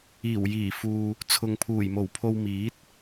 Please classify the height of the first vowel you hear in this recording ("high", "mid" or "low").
high